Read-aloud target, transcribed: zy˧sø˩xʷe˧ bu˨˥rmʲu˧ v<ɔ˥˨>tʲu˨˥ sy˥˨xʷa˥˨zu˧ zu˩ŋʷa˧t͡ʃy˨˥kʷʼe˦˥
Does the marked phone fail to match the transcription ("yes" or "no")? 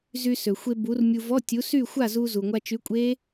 yes